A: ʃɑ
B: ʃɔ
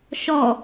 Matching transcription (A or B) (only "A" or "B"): B